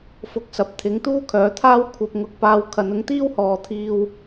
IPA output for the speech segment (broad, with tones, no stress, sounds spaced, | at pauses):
f ʊ˧ k̚ s ɐ˨ p̚ t̪ʰ ɪ˨˥ ŋ t̪ uː˥ kʰ œː˨˥ t̪ʰ aː˥ w kʷʰ ɐ˧ p̚ ŋ ʊ˧ k̚ p aː˧ w kʰ ɐ˨˧ n ʊ˨˥ ŋ t̪ iː˥ w h ɔː˨˧ t̪ʰ iː˧ w